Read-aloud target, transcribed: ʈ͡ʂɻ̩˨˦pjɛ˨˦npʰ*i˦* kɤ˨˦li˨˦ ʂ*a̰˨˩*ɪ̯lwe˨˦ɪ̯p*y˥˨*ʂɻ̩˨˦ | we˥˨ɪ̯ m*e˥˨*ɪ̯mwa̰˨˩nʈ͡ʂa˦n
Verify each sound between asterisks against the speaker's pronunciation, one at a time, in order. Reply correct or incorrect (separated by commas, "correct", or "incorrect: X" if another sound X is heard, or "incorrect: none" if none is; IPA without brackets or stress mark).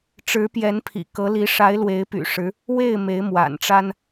incorrect: ḭ˨˩, incorrect: a˨˦, incorrect: y̰˨˩, incorrect: e˨˦